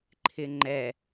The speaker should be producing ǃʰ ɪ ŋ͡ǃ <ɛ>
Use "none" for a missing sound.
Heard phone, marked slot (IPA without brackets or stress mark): ɛ